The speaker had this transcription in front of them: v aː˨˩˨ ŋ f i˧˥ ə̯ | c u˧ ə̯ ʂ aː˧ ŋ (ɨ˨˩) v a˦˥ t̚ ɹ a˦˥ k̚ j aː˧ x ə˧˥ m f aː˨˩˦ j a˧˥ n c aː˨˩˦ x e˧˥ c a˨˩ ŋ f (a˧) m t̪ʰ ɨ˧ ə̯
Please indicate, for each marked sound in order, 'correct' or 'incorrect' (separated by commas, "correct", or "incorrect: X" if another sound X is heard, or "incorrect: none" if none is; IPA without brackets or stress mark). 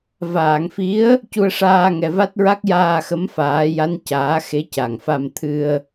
incorrect: ɛ˨˩, correct